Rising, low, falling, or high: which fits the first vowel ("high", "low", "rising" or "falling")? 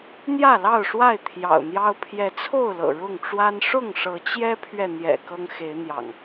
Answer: falling